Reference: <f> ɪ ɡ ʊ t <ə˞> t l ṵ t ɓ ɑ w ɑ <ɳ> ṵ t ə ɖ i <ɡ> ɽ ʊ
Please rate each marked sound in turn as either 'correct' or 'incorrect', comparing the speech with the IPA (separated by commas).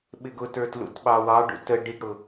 incorrect, correct, incorrect, correct